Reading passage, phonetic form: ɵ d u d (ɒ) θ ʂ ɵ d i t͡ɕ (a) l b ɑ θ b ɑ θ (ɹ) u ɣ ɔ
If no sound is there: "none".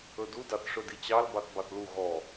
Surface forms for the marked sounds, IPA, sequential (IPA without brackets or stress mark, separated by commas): ɑ, ɑ, l